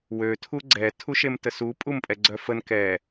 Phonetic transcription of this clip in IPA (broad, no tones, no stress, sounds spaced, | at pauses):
w ø tʰ u ɡ͡ǀ ɛ tʰ u ʃ e m t ə s u pʼ u m pʼ ɛ ɡ͡ǀ œ f ə n k ɛ